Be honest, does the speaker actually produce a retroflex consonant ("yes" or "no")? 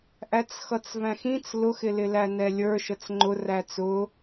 no